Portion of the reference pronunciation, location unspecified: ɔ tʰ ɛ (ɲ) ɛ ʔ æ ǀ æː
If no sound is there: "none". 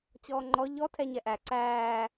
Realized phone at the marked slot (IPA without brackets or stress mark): ɲ